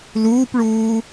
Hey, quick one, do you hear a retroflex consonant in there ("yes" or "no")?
yes